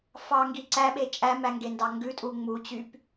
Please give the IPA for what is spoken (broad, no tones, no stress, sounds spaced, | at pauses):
f ɑ ŋ ɡ i ǀ æ ɓ e t͡ʃʼ æ m æ ŋ ɡ e n d ɑ ŋ ɡ ʉ tʼ u ŋ͡m u t͡ɕ y p